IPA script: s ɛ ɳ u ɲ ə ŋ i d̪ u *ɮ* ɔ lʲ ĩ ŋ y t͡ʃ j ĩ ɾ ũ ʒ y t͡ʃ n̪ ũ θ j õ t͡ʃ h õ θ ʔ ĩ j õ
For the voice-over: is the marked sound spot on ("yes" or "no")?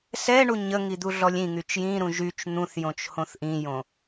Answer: yes